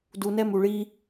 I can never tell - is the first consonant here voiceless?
no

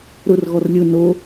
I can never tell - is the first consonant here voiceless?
no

